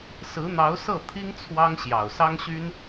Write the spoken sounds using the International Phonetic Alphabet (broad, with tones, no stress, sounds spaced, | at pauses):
s ɹ̩˧˥ n̪ ɑ˧˥ ʊ̯ s ɤ˥˩ t̪ʰ i˥ ŋ t͡sʰ w ɑ˥ ŋ ɕ j ɑ˨˩ ʊ̯ s ɑ˥ ŋ ɕ y˥ n